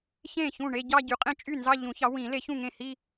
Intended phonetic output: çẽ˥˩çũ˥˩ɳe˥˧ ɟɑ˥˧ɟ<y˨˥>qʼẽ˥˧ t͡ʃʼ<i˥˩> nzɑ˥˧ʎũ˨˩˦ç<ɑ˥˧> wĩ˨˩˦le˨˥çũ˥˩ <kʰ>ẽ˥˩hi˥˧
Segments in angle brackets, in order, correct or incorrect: correct, incorrect, incorrect, incorrect

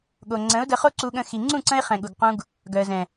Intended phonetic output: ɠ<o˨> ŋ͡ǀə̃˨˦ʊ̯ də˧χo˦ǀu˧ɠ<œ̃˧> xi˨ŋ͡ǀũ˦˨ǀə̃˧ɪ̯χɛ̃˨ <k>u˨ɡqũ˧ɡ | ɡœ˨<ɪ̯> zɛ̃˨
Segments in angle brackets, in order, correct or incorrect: correct, incorrect, incorrect, incorrect

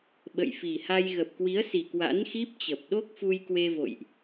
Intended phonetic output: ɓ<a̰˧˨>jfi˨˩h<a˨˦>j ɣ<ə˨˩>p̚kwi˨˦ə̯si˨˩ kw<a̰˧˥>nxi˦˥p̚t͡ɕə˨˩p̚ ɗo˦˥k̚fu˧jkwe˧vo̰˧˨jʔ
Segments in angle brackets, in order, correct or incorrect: incorrect, incorrect, correct, correct

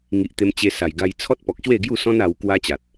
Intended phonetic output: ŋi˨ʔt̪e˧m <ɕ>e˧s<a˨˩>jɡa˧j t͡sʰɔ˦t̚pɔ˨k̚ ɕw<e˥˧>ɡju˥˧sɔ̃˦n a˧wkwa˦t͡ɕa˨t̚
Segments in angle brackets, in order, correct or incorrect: incorrect, correct, correct

